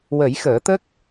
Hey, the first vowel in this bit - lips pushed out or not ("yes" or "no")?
no